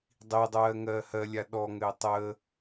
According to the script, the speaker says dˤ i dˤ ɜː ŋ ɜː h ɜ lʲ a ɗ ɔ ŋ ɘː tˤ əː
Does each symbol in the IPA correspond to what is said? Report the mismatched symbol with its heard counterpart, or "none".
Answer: none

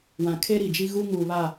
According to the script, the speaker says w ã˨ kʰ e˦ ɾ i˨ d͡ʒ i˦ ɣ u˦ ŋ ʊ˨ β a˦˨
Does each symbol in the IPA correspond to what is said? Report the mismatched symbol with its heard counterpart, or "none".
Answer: ʊ˨ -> u˨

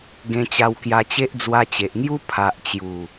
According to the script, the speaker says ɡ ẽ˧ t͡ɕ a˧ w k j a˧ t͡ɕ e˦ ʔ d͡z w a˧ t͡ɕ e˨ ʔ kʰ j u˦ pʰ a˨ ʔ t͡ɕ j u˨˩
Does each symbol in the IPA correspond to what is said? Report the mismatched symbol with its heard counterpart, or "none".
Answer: kʰ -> ŋ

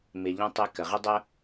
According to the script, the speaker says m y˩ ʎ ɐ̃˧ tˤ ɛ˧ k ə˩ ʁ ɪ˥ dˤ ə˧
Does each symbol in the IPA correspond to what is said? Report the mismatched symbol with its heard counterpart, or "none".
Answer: y˩ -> ɪ˩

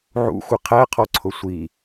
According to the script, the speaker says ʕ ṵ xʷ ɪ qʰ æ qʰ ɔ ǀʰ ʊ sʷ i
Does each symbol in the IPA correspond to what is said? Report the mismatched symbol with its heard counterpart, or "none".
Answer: none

